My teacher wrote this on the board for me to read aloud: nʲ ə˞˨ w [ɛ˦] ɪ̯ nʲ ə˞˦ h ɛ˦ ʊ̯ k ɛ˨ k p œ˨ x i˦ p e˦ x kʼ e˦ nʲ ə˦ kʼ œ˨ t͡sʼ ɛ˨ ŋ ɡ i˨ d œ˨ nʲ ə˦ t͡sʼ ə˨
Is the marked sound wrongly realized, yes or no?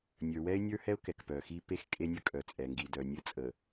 no